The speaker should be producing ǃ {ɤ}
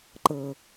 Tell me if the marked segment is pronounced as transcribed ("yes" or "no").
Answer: yes